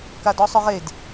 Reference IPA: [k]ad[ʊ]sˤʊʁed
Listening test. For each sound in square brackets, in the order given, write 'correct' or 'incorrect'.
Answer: correct, incorrect

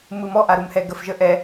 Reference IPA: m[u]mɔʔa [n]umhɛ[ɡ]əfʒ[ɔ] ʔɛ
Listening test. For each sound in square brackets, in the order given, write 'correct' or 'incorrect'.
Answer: incorrect, incorrect, correct, incorrect

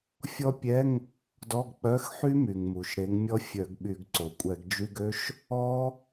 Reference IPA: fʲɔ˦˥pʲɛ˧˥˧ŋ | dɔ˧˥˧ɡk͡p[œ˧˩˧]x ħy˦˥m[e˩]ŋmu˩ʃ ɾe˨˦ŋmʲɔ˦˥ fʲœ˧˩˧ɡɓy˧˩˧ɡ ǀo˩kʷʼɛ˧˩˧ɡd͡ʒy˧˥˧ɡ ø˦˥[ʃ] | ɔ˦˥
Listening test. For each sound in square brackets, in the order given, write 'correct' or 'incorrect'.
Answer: incorrect, incorrect, correct

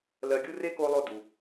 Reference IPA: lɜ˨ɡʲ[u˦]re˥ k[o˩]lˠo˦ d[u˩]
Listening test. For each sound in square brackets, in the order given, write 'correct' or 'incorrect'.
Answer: correct, incorrect, correct

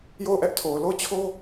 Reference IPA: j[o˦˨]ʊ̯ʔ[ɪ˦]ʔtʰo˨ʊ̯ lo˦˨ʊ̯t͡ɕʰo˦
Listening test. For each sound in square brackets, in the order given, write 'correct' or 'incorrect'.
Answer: correct, incorrect

